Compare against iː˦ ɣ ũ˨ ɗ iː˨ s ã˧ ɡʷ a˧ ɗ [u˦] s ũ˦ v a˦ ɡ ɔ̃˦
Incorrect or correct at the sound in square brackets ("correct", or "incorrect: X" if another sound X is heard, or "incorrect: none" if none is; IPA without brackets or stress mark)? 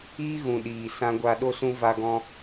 incorrect: o˦